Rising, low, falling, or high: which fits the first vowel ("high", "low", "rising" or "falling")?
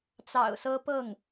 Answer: low